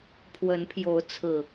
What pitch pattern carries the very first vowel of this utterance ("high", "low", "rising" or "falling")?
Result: rising